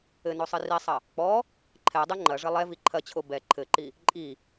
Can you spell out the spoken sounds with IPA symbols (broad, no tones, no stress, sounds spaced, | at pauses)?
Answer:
ɘ n o sˤ ɨ r i sˤ ɐ | k͡p ɔ | ǃʰ ɛ dˤ e ŋ͡ǃ ɐ ʐ ɘ lˠ ɛ v i ǃʰ ɐ t͡ɕʰ o b ɛ ǃʰ ɘ ǃ i | ǃʼ i